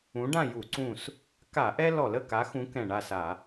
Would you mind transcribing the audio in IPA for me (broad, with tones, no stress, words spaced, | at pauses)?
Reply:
ũ˨˦ ɖã˥˨ ju˧˩˧ǀũ˧˩s | ka˧˩˧ʔɛ˦ lɔ˧˩˧lə˧˩ka˨˦xũ˨˦ kɛ̃˧˩ɳa˥˨sa˧˩˧